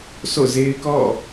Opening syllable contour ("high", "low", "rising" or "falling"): falling